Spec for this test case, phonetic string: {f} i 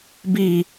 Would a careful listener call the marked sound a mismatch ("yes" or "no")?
yes